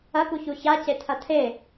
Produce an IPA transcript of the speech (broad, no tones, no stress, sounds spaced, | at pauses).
ɐ k u ç u ç a c e tʰ ɐ tʰ e